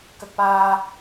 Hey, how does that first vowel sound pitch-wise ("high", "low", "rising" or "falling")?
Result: high